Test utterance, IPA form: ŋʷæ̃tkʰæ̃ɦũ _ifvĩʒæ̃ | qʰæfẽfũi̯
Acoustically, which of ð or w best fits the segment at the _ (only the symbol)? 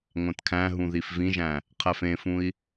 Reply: ð